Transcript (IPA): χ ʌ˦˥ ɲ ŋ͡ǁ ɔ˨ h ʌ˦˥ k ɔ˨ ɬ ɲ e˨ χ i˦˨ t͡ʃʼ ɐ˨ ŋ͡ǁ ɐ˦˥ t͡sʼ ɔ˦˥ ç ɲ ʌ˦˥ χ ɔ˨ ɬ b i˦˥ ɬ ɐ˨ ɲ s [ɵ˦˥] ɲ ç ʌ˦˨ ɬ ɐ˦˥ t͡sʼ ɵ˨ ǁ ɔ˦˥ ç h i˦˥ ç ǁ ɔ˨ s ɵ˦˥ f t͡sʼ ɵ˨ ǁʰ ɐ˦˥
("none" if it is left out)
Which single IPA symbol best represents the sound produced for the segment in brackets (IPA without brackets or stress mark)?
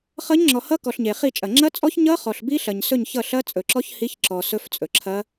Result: ɵ˦˨